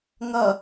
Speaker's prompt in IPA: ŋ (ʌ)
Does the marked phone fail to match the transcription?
no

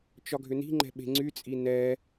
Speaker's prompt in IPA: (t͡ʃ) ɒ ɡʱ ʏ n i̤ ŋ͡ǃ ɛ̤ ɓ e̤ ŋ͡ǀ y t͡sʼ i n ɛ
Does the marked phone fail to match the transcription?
no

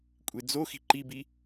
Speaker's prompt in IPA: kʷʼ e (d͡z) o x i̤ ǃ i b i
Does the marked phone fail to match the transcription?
no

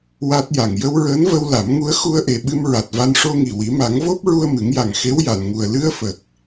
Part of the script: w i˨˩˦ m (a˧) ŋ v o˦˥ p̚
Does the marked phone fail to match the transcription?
yes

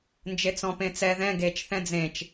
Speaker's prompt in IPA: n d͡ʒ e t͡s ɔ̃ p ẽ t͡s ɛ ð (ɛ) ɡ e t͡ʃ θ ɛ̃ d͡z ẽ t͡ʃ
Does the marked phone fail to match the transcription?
yes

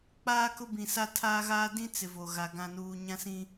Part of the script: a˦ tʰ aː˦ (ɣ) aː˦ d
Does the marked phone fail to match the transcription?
no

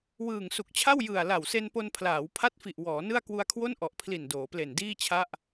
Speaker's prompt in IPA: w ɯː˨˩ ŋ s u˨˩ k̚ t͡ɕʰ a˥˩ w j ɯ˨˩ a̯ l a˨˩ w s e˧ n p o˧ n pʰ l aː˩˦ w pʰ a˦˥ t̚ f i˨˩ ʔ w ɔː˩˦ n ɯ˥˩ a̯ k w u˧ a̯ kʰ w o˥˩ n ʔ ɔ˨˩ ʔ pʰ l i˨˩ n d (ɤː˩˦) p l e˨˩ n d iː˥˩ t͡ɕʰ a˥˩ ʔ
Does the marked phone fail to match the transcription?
yes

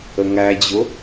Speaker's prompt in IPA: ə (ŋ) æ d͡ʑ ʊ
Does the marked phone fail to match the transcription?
no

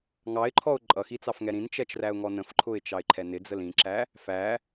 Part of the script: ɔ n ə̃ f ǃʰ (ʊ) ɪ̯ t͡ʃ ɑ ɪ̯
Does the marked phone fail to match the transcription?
no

